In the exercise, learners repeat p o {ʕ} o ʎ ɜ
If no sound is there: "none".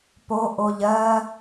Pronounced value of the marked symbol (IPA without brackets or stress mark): ʔ